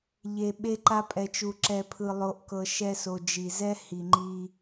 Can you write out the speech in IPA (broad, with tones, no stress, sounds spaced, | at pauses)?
ʎ e˨ ɓ e˧ ǃ a˧ pʼ ɛ˨ t͡ʃ u˨ ǁ ɛ˧ pʰ ɯ˧ lˠ o˧ ʔ k ɤ˧ ʃ ɛ˧ s o˨ d͡ʒ i˨ z ɛ˦ h i˨ ŋ͡ǃ i˧